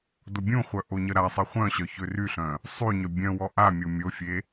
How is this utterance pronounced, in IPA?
d o bʲ ũ χʷ œ ʔ o ɲ ə ɾ a sˤ e χʷ œ̃ ɕ œ ç ø r y ɬ œ̃ | sˤ y ɲ œ bʲ œ̃ w ɔ ʔ a mʲ o mʲ o fʲ e

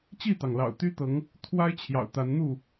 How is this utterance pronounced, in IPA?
t͡ɕ i˥˨ t̪ ɑ˩ ŋ l ɑ̰˨˩ ʊ̯ t̪ y˦ t̪ ɤ˨˦ ŋ | t̪ʰ w a˦ ɪ̯ t͡ɕʰ j ɑ̰˨˩ ʊ̯ t̪ a˨˦ n n̪ u˥˨

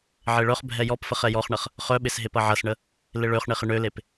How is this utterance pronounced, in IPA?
ʕ e ɭ œ χ bʱ ɛ j ɔ p f ə χ ɛ j ɔ χ ɳ ɐ χ | χ œ ɓ ɪ s ɦ e p ɐ ʕ ɐ s ɳ ə | l ɪ ɭ ø χ ɳ e χ ɪ ɳ ø l e p

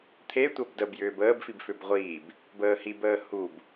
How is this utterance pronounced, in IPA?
t̪ʰ e tʷ ɐ b d ə b j ʏː b əː b f i b f ʏ b ʁʷ iː b | b əː h i b əː h u b

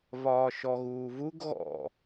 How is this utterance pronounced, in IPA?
v ɒː ʃ ɔ ɣ uː v u ɡ ɣ ɔ̰

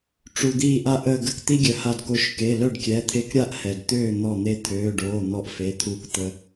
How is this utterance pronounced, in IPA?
ʈ͡ʂ u˩ d̪ iː˧˩ ʔ a˧ ʔ əː˧˩ ɡ ə˧˩ k t̪ i˧ ɡʲ œ˩ h a˧˩ d k o˧˩ ʃ k e˩˧˩ l œ˥˨ ɖ kʲ ɛ˩˧˩ t̪ʰ e˧ k ɾʲ a˥˨ ʔ h ɛ˩ d t̪ øː˥˨ n̪ ɔ˧˩ n̪ e˧ t̪ʰ øː˩˧˩ ɖ oː˩˧˩ n̪ ɔ˧ ʔ f e˩˧˩ t̪ʰ u˧˩ k t̪ ə˧

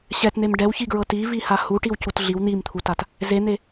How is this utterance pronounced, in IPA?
ɕ ɛ t n̪ e m ɖ ɛ w ç i ɡ ɹ ɤ t i v i h a h u ʈ i w c u t ɮ i w n̪ i m t̪ʰ u t a t | z e n̪ e

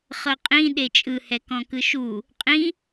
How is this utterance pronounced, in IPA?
χ ɤ qʼ ĩ ɗ e t͡ʃʼ ɯ h ɛ k ɔ̃ k ɯ ʃ u | qʼ ĩ

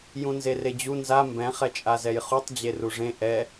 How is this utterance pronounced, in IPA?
j ũ n z e r e d͡ʑ u n z a m b ɛ̃ χ ɛ t͡ʃʼ a z ɛ j χ u tˤ d͡ʑ e r u ʐ ẽ ʔ ɛ

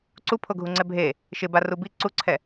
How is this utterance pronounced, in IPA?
ǀ u pʰ o ɡʱ u ŋ͡ǀ ɛ bʱ e | ʃ ɪ b a r u b i ǀ u ǀʰ ɛ

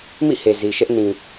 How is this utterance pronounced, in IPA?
m ḭ˦˨ h e˨ z i˨ ʃ ɛ˦ ʔ n ĩ˨

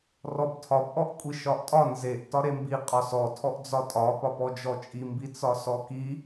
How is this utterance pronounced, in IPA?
r ɔ b tʰ ɒ b ʔ ɔ ʔ kʷʼ i ʃ ɒ ʔ tʼ ɒ n z e ʔ t ɒ ɾ e m b i qʼ ɒ s ɔ tʰ ɔ ʔ d͡z ɒ tʼ ɒ p ɒ p ɔ d͡ʒ ɔ t͡ʃʼ i m b i t͡s ɒ s ɔ k i

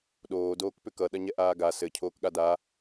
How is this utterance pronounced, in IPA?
ɗ oː d oː k p ʏ k ʌ ɗ ɐ ɲ ɛ ʔ aː ɡ a s ɘ cʰ oː k ɠ a d a

